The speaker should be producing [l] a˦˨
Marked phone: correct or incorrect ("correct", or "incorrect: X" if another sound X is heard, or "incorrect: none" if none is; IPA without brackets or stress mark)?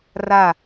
incorrect: r